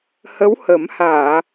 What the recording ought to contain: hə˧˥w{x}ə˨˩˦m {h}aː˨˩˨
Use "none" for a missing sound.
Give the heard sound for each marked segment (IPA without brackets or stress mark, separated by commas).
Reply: h, h